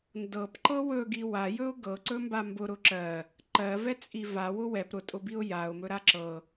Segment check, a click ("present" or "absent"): present